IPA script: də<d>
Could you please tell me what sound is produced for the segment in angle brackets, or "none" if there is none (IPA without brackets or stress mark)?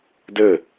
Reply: none